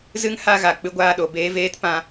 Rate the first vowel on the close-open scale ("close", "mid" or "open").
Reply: close